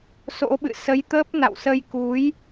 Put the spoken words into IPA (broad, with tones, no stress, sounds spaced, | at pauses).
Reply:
s o̰˧˥ ɓ ɨ̰˧˨ s ə˨˦ j t̪ əː˦˥ p̚ n a̰˧˨ w s ə˧ j k u˨˦ j